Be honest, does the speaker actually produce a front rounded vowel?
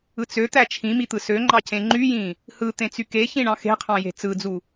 yes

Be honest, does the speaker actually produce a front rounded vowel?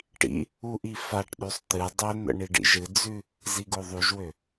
yes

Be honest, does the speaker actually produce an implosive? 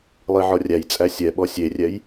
yes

